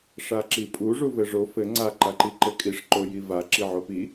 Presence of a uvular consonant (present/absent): absent